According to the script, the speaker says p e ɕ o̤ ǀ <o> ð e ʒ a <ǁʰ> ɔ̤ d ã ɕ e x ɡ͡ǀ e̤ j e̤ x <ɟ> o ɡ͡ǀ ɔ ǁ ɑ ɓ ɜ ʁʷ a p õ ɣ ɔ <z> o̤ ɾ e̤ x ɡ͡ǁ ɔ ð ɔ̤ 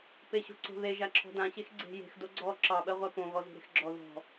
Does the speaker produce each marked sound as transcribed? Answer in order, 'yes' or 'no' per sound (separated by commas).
no, yes, no, yes